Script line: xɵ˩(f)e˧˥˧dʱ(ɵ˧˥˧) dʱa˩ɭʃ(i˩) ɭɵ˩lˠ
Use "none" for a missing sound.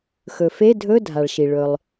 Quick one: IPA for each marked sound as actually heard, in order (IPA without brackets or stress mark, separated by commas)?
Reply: f, ɵ˧˥˧, i˩